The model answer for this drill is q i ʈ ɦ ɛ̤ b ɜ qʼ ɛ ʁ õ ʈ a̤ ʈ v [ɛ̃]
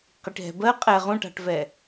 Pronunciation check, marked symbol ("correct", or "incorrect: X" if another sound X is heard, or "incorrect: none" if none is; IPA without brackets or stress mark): incorrect: ɛ